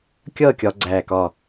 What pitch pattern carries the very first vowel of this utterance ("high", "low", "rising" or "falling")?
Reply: falling